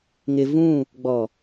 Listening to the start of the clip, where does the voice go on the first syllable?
low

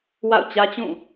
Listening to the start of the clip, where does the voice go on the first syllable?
falling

